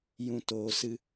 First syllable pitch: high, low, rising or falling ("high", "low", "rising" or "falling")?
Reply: low